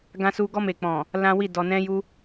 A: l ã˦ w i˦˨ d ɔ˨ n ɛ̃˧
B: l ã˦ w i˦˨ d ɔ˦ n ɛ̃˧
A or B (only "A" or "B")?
A